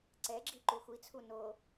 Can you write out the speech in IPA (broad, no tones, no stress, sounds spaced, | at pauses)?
ǀ ɛ ɡ͡ǁ i ǃ u xʷ i t͡sʰ u n o